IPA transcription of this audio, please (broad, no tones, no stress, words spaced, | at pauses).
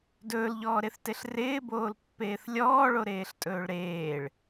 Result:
dɵːlʎɔːɾeθteɬ rɪːboːlpːeːθ lʲɔːɭoɾeːɬtʼɵːɭ ɾeːɭ